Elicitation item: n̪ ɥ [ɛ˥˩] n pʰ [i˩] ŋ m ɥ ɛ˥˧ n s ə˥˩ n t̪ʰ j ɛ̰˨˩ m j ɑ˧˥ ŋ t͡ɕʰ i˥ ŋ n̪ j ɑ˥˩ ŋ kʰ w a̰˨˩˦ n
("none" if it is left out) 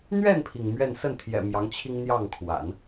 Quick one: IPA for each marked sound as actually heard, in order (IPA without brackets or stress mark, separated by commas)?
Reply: ɛ˥˩, i˩